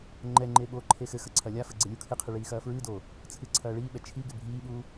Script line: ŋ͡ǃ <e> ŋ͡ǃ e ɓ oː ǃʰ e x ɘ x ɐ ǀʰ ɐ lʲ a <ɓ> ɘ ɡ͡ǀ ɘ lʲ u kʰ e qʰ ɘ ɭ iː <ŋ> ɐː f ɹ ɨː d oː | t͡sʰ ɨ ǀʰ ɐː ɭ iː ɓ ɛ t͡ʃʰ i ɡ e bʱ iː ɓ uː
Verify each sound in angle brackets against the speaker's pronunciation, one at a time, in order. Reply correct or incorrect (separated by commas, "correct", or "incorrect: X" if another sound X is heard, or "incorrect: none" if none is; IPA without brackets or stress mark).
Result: incorrect: ɛ, incorrect: f, incorrect: x